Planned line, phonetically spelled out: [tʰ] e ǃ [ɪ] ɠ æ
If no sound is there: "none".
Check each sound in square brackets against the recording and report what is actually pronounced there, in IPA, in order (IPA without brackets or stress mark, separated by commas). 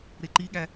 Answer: ɾ, i